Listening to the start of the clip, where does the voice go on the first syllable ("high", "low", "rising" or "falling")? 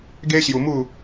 high